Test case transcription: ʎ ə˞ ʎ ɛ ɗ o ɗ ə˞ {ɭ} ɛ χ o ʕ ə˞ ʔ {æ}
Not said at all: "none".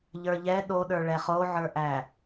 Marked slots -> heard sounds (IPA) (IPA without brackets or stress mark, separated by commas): ɭ, æ